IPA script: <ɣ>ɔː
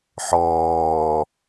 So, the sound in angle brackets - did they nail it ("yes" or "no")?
no